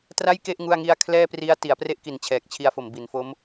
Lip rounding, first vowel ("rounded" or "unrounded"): unrounded